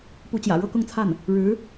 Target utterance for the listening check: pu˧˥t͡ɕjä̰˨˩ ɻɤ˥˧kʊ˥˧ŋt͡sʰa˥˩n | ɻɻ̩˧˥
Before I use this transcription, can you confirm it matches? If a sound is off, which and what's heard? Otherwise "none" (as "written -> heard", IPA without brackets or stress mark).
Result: none